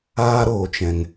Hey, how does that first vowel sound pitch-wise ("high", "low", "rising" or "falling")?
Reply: high